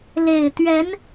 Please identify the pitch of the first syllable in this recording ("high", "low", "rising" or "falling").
low